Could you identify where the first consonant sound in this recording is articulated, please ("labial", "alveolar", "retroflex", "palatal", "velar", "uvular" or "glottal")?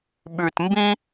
labial